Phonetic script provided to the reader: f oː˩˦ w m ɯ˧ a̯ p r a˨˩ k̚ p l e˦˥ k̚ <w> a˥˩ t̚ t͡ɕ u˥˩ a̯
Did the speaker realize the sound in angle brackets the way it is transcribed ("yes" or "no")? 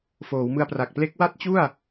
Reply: yes